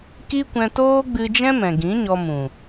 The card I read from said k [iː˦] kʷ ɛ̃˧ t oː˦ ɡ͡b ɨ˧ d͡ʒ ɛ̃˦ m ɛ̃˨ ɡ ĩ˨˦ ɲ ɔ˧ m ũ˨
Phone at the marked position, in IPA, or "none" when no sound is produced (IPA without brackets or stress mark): i˦